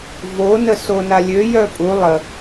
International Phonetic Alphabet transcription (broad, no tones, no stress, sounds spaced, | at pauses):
v o n ə s o n a lʲ ø j œ pʼ u lˠ ə